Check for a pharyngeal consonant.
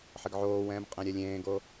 present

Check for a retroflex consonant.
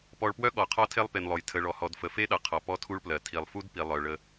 present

